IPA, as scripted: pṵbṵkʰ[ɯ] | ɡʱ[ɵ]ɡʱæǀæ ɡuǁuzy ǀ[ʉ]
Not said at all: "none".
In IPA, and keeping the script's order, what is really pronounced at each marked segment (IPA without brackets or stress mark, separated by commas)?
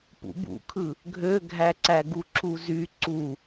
ɯ, ø, u